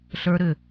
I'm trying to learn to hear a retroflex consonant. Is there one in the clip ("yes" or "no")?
no